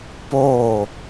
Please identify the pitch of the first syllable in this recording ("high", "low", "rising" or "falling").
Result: falling